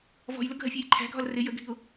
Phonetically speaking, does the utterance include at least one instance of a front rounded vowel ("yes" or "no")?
no